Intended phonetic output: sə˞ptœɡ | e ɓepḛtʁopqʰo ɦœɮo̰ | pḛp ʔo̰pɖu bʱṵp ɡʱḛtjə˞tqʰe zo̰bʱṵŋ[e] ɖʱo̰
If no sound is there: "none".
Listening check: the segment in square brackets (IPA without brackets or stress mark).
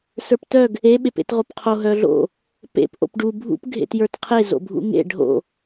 ḛ